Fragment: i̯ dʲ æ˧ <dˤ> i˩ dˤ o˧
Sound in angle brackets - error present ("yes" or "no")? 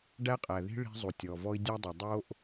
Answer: no